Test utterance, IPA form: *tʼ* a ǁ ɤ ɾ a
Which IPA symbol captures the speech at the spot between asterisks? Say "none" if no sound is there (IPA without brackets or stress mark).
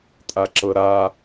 tʼ